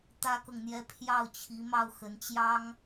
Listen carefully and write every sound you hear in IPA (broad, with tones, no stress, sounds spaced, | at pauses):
t̪ ä˥ k ɤ˨ ŋ n̪ j ɛ˥ pʰ j ɑ˥˩ ʊ̯ t͡ɕʰ i˧˥ m ɑ˥˩ ʊ̯ x ə˧˥ n t͡ɕ j ɑ˥ ŋ